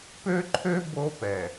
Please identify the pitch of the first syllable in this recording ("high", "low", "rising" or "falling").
high